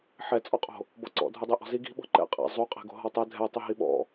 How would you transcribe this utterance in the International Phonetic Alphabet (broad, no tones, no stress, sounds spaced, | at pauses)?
ħ ɛ t͡sʼ ɔ qʼ o̤ | b ɔ ǀ ɔ̰ dʱ u dˤ e ʔ ɔ̤ z i ɡ i̤ ɓ ɔ̤ ǃ ɛ̰ qʼ ɛ̰ zˤ u qʼ e̤ ɡ o̤ ɦ ɔ tˤ ɛ dʱ ɛ tˤ ɯ ɦ i ɓ ɔ̰